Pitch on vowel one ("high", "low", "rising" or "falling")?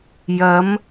rising